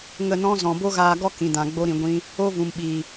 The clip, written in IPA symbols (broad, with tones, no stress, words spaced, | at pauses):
ŋə˦˨nɔ̃˦ zɔ̃˨bo˦ɣaː˧ɡɔ˦ kĩ˨dã˨ɡ͡bo˧ ɾĩ˨ ɡʷĩ˧ | o˦vũ˨mɓiː˨